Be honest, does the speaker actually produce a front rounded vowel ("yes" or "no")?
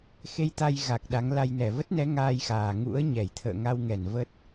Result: no